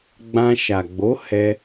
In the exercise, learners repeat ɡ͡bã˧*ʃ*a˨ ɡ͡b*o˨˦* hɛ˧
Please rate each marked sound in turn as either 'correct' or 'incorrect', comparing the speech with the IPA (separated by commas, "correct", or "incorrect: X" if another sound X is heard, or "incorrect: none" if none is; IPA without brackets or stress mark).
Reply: correct, correct